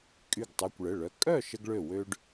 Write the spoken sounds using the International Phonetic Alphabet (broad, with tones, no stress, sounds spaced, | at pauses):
kʼ y˧˩ ɡ tˤ u˩˧˩ kʷ ɭ ə˩˧˩ ɭ œ˩˧˩ kʼ œ˥˨ ʃ ə˧ ɡ ɭ ø˧˩ w ø˧ ɖ